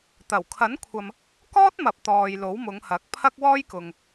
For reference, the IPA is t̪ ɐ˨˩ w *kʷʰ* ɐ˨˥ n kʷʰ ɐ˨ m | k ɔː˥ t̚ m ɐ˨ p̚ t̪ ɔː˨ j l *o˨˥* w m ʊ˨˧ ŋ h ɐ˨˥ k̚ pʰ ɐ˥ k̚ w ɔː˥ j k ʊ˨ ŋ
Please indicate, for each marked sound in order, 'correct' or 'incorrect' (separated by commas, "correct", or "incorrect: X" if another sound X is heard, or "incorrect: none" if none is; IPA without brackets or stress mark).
incorrect: kʰ, correct